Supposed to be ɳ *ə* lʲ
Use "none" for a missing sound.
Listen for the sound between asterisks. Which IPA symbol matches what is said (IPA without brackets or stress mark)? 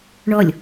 ɔ